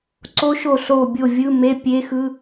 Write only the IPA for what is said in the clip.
ǀ o˦˥ ʃ o˦˨ ɬ o˦˨ bʲ o˦˨ vʲ ɯ˧˥˧ m e˧˥˧ pʲ e˦˥ x ɯ˧˥˧

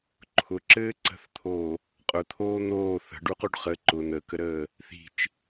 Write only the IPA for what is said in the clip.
ǃʰ ʊ ǁ ɘː ǀ ə̤ θ t̪ʰ oː | qʼ ʊ t̪ʰ oː n̪ oː θ ə̤ ɖ u q u ɖ χ ə ǃ ʊ n̪ ə k ə ɾ əː | θ i̤ t͡ʃ

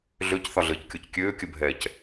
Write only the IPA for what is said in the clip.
ɮ ø c θ ɒ ɮ ɘː c kʲ o c kʲ øː kʲ ə bʱ ɛː c

